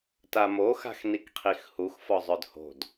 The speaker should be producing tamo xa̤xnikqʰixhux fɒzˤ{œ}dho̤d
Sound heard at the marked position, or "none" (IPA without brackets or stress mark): œ